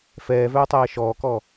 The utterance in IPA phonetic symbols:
f ɛː v œː tˤ ɛː ʃ ɔː k ɔ

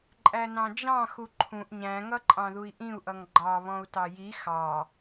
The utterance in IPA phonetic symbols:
ǃʼ æ n ɑ̃ d͡ʒ ɑ̃ x u ǃʰ ũ ʔ ɲ æ̃ ŋ ʌ ǃʼ ɑ̃ ð u i̯ ʔ ĩ u̯ ʔ ʌ ŋ ɡ͡ǃ ɑ β ɔ̃ u̯ t ɑ j i x ɑ

